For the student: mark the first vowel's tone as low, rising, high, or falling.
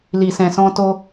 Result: low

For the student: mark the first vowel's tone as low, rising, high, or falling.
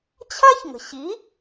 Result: high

